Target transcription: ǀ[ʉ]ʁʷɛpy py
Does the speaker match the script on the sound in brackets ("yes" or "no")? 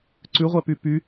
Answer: yes